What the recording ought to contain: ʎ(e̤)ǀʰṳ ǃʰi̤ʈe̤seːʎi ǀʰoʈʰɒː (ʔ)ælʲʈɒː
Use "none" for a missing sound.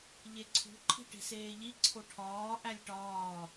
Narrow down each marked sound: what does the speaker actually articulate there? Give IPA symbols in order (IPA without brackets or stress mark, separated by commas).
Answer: e, ʔ